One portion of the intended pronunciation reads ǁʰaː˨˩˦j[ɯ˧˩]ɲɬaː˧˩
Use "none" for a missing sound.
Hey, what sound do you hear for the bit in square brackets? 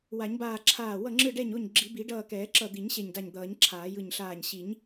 ɯ˧˩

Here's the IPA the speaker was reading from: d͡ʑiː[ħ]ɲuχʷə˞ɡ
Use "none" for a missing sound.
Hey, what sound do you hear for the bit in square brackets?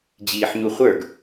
ħ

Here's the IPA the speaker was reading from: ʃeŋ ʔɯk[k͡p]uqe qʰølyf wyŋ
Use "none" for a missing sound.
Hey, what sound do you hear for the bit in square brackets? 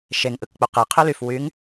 k͡p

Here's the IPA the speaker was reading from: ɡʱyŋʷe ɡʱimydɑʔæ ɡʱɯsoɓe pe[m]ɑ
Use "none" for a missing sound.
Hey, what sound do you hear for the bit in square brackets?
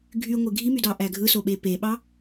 ɓ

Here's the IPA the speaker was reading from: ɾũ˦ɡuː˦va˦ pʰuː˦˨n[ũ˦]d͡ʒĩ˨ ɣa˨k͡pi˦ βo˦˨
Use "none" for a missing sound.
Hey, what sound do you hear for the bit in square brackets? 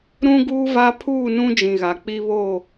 ũ˦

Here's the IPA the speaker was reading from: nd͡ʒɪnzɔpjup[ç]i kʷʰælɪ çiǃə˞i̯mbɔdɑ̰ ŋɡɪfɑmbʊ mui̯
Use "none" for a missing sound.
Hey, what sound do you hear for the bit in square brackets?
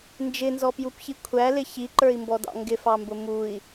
ç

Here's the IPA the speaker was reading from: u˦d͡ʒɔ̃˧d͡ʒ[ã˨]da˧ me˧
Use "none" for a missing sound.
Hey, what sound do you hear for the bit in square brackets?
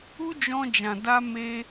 ã˨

